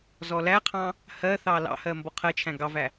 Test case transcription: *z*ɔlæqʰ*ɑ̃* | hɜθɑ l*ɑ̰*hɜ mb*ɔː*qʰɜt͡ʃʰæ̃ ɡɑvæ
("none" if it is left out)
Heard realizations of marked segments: z, ɑ̃, ɑ̰, ɔ

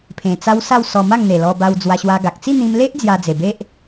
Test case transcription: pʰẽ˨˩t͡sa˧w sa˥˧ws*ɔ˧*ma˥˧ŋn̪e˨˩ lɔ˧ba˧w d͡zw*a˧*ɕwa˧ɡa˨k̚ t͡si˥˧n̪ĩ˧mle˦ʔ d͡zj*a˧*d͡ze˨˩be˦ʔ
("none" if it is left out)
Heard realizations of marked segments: ɔ˧, a˧, a˧

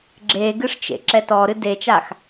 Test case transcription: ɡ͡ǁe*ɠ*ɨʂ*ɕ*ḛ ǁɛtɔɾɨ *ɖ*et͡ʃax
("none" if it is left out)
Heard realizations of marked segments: ɡ, t͡ʃ, d

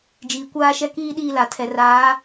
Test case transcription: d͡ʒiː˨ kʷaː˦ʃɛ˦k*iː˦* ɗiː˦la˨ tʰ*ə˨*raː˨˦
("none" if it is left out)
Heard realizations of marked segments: iː˦, ɛ˨

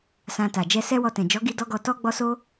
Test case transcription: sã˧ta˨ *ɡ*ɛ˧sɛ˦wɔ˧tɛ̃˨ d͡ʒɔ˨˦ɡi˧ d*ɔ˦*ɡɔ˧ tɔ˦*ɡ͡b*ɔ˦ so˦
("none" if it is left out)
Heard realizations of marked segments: d͡ʒ, ɔ˦, ɡ͡b

